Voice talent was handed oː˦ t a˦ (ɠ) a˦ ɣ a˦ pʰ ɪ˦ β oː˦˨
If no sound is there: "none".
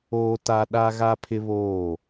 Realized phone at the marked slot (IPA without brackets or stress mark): ɗ